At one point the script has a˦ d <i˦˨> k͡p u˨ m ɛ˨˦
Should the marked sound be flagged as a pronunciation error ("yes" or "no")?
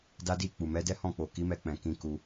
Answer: no